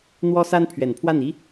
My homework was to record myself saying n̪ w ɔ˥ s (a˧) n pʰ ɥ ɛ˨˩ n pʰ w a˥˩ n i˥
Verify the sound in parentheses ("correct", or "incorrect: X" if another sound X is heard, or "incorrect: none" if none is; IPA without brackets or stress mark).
incorrect: a˥